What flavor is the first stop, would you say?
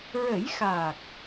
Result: plain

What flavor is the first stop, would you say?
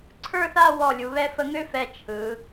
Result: click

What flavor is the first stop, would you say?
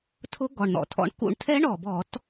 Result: aspirated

